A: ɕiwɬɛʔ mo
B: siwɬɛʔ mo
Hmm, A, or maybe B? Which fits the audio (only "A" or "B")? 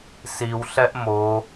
B